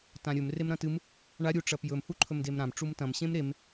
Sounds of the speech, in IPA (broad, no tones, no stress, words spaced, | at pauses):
tãɾʲɵm remɾɐ̃tɨm | ɳa ɾʲuʈ͡ʂɐpjɵm huǃʰɵmdemɾãm ʈ͡ʂumtɐ̃m ɕẽmɾem